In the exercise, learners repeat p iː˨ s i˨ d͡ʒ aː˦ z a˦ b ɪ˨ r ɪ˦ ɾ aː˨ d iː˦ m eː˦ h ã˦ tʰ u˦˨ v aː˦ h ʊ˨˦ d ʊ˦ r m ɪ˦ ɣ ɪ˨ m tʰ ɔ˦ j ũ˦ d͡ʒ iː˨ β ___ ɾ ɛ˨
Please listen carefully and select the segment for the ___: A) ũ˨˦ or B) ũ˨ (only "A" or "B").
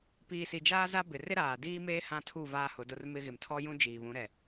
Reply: A